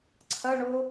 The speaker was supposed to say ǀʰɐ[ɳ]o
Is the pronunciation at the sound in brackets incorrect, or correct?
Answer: correct